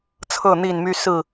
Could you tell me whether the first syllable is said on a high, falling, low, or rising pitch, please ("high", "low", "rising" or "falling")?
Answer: falling